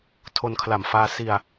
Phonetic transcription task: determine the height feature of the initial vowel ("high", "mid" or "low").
mid